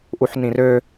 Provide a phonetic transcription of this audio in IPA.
ʔuħnĩrø

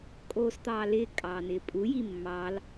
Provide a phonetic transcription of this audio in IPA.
kʼoːst̪ɑːlɪː kʼɑːnɪːpʼu jimːɑl

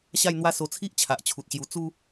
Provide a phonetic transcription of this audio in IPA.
ɕa˥˧jn̪wa˦ so˧t͡sʰi˦ʔ t͡ɕʰa˨ʔt͡ɕʰu˨t̚ɕju˧ t͡su˦

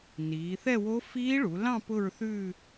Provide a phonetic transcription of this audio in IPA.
niː˩˧θɛ˥˧wo˦˥ fiː˦˥ɭu˩˧lɑ̃˥˧ pʊ˥˧ɹθʉː˥˧

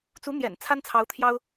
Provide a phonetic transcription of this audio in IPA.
t͡su˧˥n̪jɛ̰˨˩n t͡sʰa˥nt͡sʰɑ˧˥ʊ̯t̪ʰjɑ˥ʊ̯

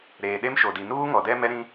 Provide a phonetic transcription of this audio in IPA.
ɾeː˨ ɗe˦mʃo˨di˨ nuː˦ŋɔ˨dɛ˦ mɛ˦ɾĩ˦

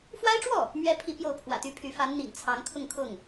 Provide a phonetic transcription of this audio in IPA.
fwa˥ɪ̯ʈ͡ʂwɔ˥˩ | mɥɛ˥ pʰi˧˥ pjo˥˩ʊ̯ pʰwä̰˨˩t̪y˥pʰy˧˥ fa˧˥nn̪ḭ˨˩ŋ t͡sʰɑ˧˥ŋkʰʊ˥˧ŋ kʰʊ˥˩ŋ

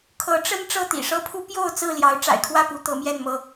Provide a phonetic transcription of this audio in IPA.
kʰɤ˨˦ʈ͡ʂə˦n ʈ͡ʂɤ˥˨t̪ḭ˨˩ʂɤ˦pʰu˦ pjo˥˨ʊ̯ t͡sɹ̩˥˨ljɑ˨˦ʊ̯ ʈ͡ʂa̰˨˩ɪ̯kʰwä˥˨pu˨˦ t̪ɤ˨˦mjɛ˥˨nmɤ˥˨

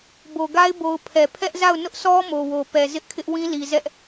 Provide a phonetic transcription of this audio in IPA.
bo˨ɡa˦ɪ̯ bo˨ʊ̯ pʰɛ˨ pʰɛ˦ʔza˦˨ʊ̯ nʊ˦ʔsʰɔ˦ mo˨wo˨pɛ˨ zɪ˦ʔkʰɪ˦ʔwĩ˦ li˨ zɛ˦ʔ

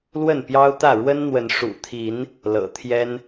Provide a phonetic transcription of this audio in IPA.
lwə˥˨npjɑ˦ʊ̯t̪ä˥˨ ɻwə˦nn̪wə˨˦n ʂṵ˨˩t̪ʰi˨˦n | lɤ̰˨˩t̪ʰjɛ˦n

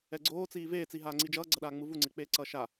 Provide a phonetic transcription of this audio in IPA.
ɛɡ͡ǀoːt͡siː veːt͡siɦaːŋ͡ǀi d͡ʒʌːɡ͡ǀʌɗaːŋ͡mɯ vuŋ͡ǀek͡peː ǀʌːʃa

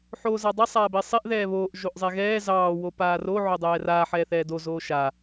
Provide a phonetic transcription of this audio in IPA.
ħoːzadˤɛ sˤaːbesˤeʔ ðɛːβoːʔ ʒoʔzˤɛɣɛː zɑː wopaːro ʕodˤɛːraː ħɛːθɛːdo zoːʃa

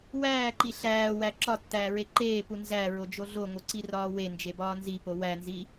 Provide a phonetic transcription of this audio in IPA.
wæːǃi ɬæːwæ ǁɒtːæːɹe ǃeːpu nzæɹod͡ʒo ɮoŋoǀirɒː wend͡ʒebɒː nzipo wænzi

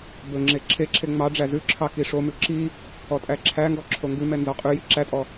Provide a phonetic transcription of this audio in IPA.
bɵŋ͡ǁe ǁʰeǁʰe ŋ͡mɑ ɖ͡ʐæzʉǁʰɑ kiʂomʉ ǁi | ɔtʼæǁʰæŋɡɔ ǁʰoŋɡʉmɛ nzɔqʼʉji ǁætʼɔ

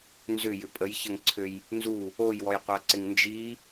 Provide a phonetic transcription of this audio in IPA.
nzʏjʏ pʼəjçəŋǀʰøj | nzu | ojwɔjqʷaǀɪŋ nd͡ʒi

